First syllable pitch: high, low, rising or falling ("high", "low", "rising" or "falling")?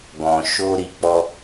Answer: low